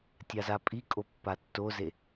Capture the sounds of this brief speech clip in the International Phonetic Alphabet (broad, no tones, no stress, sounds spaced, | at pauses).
tʲ a z a pʼ i kʼ o pː a tː o z e